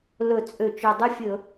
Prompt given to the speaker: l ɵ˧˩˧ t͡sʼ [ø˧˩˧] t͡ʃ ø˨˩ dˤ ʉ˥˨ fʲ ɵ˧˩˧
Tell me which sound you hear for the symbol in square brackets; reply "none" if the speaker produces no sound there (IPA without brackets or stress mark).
ø˧˩˧